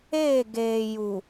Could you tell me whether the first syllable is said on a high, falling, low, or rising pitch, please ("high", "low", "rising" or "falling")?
falling